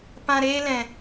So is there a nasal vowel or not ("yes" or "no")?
yes